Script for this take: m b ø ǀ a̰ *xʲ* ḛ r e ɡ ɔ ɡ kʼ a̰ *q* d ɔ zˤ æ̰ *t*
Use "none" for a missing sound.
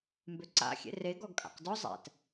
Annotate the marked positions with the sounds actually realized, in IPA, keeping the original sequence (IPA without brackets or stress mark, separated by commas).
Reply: xʲ, q, t